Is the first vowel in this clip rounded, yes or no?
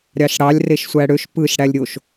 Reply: no